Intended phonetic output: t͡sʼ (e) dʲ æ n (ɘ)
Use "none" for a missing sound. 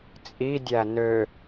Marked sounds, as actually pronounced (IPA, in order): i, ø

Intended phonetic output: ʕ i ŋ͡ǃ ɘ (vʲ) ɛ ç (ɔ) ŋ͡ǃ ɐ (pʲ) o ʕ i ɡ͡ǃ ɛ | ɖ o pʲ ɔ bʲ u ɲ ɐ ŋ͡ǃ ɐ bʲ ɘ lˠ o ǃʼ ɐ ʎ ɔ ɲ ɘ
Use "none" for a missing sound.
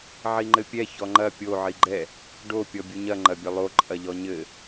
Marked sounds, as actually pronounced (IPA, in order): pʲ, ɔ, pʲ

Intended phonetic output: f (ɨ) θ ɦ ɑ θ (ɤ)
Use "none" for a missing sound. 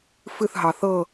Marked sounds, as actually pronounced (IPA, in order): ɨ, ɤ

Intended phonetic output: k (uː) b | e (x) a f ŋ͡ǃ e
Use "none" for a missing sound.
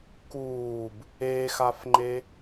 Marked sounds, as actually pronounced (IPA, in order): uː, x

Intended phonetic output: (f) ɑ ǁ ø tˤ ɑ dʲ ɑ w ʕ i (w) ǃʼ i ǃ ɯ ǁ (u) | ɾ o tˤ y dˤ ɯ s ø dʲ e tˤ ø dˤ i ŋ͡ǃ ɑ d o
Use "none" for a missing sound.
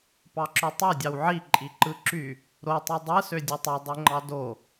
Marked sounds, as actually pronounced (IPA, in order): p, none, y

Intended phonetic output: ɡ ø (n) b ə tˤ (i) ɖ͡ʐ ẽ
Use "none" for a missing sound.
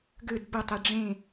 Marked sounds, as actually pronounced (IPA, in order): d, e

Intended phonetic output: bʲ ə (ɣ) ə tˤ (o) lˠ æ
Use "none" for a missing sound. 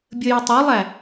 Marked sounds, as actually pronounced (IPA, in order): j, o

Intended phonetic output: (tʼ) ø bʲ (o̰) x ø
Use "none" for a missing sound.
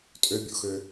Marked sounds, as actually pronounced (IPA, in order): tʼ, o̰

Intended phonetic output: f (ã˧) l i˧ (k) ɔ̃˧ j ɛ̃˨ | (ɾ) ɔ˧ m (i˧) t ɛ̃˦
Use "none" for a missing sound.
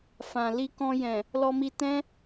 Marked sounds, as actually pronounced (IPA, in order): ã˨, k, l, i˧

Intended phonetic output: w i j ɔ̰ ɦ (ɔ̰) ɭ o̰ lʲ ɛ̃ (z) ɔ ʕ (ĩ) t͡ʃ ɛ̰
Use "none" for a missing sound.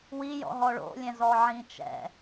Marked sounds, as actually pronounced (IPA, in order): ɔ, z, ĩ

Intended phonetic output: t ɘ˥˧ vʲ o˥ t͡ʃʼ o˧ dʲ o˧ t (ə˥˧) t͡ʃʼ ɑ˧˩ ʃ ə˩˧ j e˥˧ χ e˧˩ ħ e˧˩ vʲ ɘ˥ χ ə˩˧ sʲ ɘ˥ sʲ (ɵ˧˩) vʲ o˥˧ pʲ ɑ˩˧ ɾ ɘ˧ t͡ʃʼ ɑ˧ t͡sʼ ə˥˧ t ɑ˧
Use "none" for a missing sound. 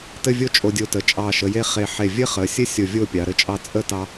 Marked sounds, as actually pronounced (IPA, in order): ə˩˧, o˧˩

